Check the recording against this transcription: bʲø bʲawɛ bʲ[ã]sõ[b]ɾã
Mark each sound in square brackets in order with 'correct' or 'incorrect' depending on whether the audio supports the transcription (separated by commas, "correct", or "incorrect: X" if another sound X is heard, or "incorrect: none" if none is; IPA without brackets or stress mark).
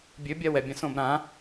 correct, correct